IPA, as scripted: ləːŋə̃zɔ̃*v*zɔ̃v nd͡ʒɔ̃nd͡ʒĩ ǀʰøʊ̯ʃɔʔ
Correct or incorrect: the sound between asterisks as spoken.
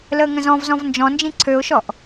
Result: correct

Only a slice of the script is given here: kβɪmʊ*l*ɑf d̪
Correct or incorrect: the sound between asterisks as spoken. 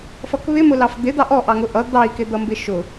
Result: correct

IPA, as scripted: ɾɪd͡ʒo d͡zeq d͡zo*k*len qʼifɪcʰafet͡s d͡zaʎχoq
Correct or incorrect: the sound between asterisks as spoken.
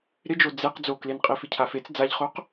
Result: correct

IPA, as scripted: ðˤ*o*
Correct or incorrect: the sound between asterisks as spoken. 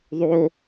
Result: correct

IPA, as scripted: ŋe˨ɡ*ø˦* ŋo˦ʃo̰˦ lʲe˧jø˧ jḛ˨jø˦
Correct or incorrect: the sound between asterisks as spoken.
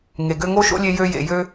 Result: correct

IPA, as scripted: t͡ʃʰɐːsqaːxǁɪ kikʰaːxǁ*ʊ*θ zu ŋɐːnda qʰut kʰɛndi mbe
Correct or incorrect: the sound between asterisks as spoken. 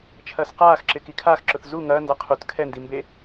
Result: correct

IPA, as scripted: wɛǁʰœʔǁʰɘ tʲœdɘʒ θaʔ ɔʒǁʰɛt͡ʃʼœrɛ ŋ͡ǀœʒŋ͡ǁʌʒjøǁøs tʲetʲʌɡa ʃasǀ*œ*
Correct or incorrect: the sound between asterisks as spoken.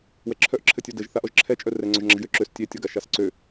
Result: incorrect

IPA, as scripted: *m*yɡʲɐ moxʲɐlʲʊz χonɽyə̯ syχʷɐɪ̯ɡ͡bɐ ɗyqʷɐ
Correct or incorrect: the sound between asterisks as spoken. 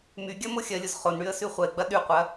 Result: correct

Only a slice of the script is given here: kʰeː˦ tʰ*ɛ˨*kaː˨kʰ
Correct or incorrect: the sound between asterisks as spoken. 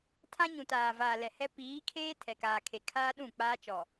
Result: correct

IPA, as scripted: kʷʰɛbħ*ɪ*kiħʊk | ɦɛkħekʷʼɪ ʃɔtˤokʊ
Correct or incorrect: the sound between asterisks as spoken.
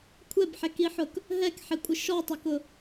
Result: incorrect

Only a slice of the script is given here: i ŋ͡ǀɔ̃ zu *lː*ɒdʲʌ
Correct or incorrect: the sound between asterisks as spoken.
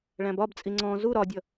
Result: incorrect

